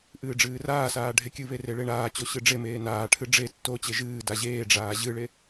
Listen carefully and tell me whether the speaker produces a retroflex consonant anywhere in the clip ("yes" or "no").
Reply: yes